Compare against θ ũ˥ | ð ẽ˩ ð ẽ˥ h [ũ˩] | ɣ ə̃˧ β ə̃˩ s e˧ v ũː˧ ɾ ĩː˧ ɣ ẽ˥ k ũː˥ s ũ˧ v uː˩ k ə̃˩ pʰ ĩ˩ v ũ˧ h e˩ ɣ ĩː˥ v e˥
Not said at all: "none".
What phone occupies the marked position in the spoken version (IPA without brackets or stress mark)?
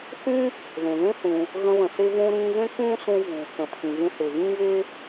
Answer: ũ˩